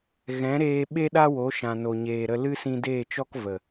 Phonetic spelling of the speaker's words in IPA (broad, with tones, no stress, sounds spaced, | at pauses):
ɣ ɛ̃˨˦ ɾ eː˧ ɓ e˦ ɗ a˦ w o˨˦ ʃ ã˨ n o˨ ɲ eː˨ ɾ ə˧ l ɨ˦ s ĩ˧ d eː˦˨ t͡ʃ ɔ˦ k v ə˨